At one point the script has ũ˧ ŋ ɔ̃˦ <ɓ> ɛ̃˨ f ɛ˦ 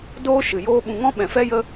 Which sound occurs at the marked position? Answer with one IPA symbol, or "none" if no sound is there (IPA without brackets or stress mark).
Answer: ɓ